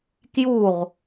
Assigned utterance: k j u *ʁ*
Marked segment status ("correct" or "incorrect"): correct